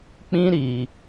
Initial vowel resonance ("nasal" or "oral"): nasal